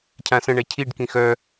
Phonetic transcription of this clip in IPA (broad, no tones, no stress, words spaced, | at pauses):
cʰãsə̃ ɳɛcʰiɖ kĩxœ